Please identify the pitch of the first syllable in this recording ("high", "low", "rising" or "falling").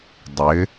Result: rising